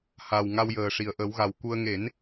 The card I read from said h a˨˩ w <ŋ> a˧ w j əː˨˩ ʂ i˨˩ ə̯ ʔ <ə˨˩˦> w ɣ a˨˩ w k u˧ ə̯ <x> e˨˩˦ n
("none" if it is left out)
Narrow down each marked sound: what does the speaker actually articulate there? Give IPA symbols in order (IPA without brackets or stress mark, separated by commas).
ŋ, ə˨˩˦, ŋ